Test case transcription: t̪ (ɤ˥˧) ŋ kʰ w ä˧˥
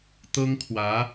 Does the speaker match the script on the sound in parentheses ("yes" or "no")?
no